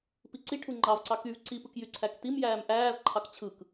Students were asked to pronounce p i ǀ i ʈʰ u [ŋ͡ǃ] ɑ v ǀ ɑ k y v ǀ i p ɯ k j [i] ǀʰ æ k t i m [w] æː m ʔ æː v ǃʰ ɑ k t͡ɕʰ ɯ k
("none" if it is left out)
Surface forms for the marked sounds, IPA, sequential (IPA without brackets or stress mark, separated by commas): ŋ͡ǃ, y, j